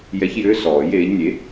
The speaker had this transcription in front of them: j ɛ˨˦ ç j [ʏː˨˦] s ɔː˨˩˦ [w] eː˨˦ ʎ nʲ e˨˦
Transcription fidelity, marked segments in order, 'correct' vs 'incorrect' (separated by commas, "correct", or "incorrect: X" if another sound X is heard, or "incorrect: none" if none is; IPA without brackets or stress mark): correct, incorrect: j